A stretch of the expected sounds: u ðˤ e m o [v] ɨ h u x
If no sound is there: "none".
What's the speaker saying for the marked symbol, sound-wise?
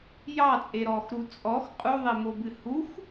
b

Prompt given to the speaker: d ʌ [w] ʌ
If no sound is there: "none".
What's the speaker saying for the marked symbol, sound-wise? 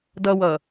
w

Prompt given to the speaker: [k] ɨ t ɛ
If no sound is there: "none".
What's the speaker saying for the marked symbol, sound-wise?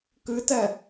k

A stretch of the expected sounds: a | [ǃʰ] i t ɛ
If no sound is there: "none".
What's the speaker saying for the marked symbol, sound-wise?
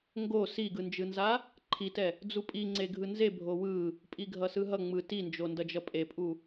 ǃʰ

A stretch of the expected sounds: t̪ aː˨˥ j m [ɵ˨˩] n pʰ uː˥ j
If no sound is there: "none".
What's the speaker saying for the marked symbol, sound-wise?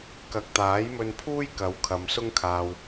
ɵ˧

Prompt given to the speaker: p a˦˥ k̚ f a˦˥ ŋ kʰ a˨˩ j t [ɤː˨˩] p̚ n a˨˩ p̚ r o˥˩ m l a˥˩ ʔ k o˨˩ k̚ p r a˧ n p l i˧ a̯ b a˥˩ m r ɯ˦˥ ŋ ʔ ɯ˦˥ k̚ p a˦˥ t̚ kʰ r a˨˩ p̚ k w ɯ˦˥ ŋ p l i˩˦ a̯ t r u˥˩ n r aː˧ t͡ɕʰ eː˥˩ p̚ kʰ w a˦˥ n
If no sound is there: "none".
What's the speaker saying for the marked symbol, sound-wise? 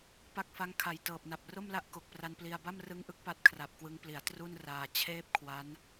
ɤː˨˩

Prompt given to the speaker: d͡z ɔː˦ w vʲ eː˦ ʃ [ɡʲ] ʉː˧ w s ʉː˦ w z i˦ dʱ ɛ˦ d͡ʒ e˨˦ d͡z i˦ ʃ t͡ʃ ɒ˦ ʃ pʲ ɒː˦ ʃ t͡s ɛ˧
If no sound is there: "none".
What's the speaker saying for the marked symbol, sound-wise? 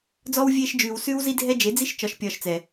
d͡ʒ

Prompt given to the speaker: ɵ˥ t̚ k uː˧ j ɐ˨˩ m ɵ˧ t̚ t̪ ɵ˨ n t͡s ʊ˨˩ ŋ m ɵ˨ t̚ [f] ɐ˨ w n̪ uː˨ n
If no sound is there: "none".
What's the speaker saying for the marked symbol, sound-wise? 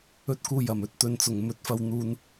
f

